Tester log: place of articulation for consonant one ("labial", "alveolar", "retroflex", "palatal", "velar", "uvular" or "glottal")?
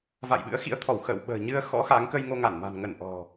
labial